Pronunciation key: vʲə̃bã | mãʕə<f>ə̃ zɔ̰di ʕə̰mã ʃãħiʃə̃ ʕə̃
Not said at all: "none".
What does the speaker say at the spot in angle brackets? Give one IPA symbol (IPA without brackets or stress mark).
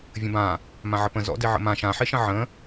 p